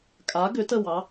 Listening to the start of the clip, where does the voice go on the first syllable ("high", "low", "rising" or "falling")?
rising